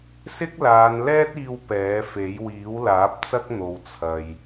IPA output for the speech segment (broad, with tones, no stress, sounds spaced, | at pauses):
s ɪ˥ k̚ l aː˨˧ n l ɛː˥ t̚ iː˧ w p ɛː˨˥ f e˨˥ j w iː˨˥ w l aː˨˥ p̚ t͡s ɐ˥ k̚ n̪ o˨ w t͡sʰ ɐ˨ j